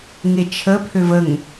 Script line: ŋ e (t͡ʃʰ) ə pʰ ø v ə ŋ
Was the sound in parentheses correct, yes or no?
yes